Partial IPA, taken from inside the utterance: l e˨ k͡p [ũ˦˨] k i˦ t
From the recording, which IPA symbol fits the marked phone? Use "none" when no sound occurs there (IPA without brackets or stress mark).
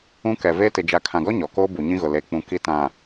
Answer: ũ˨